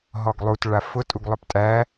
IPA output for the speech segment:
ɦ ɔ ɡ lˠ u t ɭ a f ʊ tʼ u ɡ lˠ ɵ p tʼ æ

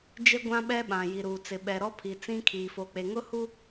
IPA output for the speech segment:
d͡ʒ e˦ ɡʷ ã˦ ɓ ɛ˦ ɓ ã˨ j i˨ ɾ uː˨ t͡s ɪ˨ ɓ ɛ˨ ɾ ɔ˦ pʰ i˨ t͡s ĩ˦ kʰ iː˨ f o˨ k͡p e˨ ŋ ʊ˦ h u˦

